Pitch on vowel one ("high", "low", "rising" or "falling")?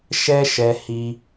high